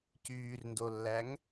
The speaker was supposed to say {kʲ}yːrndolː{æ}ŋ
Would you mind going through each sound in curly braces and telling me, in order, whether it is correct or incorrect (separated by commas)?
incorrect, correct